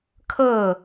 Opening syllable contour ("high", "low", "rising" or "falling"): falling